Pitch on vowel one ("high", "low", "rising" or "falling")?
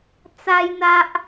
high